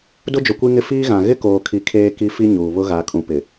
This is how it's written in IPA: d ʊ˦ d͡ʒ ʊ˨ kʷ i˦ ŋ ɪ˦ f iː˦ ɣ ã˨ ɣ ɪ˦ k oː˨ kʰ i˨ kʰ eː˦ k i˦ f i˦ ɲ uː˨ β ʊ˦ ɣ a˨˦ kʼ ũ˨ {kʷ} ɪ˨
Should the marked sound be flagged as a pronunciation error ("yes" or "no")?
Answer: yes